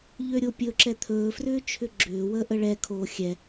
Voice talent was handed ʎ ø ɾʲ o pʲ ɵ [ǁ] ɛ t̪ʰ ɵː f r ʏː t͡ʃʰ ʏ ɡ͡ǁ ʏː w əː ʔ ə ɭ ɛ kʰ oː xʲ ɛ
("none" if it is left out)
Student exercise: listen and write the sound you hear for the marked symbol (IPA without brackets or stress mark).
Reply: ǁ